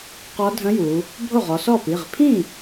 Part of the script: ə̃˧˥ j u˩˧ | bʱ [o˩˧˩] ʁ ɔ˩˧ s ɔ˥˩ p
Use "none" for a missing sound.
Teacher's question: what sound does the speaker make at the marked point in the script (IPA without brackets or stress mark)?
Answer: o˥˩